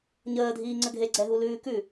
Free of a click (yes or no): no